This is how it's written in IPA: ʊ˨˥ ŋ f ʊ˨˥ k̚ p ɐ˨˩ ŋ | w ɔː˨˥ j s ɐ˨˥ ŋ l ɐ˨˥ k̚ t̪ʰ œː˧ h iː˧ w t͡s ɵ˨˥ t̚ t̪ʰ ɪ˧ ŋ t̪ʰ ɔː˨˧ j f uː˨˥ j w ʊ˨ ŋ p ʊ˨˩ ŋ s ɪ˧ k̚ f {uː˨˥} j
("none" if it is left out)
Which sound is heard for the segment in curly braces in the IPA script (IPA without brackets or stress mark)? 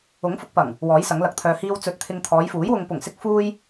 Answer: uː˥